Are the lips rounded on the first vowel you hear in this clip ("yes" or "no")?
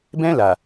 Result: no